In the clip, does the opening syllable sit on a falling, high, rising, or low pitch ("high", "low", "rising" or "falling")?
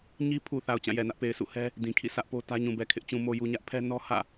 high